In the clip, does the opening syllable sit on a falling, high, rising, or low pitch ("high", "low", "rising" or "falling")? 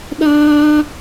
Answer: high